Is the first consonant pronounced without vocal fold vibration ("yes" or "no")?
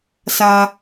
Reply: yes